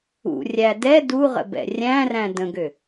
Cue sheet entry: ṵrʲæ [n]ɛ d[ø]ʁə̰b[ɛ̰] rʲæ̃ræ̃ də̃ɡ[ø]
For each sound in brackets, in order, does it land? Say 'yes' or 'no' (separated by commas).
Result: no, no, yes, yes